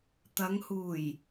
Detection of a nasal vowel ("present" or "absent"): absent